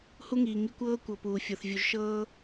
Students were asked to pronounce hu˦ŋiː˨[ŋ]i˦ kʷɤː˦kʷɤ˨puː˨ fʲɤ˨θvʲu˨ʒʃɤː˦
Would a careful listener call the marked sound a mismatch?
no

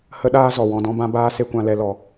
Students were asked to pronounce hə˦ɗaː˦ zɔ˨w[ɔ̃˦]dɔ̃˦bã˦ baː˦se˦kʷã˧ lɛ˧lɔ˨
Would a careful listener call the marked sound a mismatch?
yes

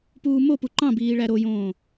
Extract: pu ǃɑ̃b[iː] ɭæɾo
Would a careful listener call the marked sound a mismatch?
no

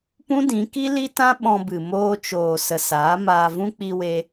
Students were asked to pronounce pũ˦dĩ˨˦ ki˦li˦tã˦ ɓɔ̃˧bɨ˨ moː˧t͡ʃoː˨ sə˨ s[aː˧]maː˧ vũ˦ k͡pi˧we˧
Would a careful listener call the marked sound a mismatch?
yes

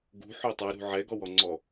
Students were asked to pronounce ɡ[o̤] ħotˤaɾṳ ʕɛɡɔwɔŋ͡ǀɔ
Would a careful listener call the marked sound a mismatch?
yes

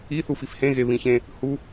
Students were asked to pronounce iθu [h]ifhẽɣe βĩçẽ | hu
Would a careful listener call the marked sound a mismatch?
yes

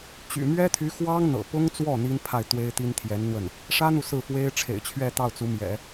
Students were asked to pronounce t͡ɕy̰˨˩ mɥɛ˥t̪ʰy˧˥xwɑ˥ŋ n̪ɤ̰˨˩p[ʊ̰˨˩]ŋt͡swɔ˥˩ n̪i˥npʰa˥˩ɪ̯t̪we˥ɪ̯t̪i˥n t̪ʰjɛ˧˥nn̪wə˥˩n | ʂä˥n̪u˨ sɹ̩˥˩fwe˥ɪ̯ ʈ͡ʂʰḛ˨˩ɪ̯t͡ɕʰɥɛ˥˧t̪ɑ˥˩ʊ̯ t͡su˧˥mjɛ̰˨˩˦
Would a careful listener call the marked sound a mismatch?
yes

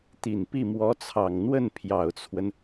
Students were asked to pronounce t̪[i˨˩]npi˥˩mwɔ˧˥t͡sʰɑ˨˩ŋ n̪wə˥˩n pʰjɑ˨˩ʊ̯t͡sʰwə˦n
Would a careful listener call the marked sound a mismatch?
no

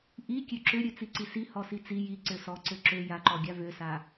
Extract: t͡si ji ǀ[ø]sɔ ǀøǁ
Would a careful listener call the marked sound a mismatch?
no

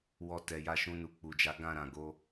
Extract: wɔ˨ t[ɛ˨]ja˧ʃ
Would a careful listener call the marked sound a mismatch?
no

